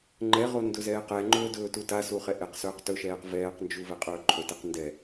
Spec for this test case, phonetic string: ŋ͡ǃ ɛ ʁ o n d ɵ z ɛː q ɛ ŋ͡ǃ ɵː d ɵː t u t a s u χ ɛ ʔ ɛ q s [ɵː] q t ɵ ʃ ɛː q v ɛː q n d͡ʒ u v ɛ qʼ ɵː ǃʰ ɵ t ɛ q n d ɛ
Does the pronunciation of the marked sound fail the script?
no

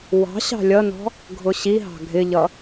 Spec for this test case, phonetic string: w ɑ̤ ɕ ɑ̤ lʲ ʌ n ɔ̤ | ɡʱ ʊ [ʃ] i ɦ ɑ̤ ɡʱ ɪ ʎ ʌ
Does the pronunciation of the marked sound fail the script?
yes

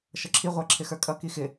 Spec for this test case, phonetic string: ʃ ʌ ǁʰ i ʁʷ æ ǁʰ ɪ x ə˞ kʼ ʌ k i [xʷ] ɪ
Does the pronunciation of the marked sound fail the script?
yes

